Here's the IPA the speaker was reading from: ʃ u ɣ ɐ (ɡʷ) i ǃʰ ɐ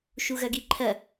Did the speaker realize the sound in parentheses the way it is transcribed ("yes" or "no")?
no